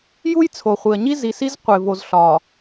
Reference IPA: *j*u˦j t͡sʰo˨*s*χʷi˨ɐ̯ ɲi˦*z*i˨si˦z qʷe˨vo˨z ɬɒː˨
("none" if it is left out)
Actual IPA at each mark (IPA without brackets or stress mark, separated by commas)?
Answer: j, none, z